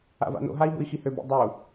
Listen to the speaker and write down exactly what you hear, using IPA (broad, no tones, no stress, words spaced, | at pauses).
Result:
a̰va̰no̰ɦai̯ ɦṵi̯xihøbḭ dˤu